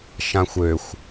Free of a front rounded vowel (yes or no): no